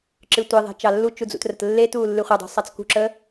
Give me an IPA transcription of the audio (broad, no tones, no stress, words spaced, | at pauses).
ǁɨtʷeðˤe̤ t͡ʃɑlːut͡ʃu d͡zṵtrətlːetuː lːɨχʷɛdˤṳ sˤɑt͡skṳǁə